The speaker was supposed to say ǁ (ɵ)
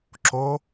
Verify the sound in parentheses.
incorrect: o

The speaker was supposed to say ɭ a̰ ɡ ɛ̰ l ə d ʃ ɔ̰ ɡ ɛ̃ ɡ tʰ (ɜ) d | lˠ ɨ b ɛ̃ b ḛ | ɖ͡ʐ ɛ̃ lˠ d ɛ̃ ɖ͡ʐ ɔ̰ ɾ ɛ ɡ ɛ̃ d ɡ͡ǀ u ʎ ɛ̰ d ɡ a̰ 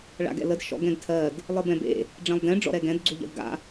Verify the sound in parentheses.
correct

